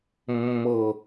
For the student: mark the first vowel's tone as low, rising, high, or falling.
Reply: low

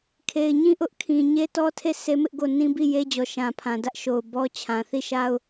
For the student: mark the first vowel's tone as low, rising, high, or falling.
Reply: low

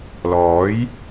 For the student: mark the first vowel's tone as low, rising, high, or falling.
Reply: rising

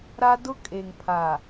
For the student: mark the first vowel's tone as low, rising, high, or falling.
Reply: high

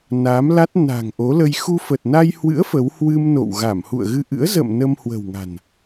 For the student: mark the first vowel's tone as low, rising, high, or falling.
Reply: rising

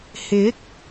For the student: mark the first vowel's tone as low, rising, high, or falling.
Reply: rising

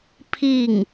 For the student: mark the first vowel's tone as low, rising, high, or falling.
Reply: falling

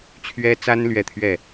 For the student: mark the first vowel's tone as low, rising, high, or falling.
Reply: high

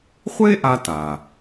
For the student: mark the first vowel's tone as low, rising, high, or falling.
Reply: high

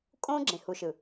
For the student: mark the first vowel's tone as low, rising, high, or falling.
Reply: high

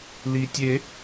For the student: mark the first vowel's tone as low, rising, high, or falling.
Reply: low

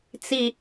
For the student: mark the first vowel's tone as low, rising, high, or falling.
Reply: low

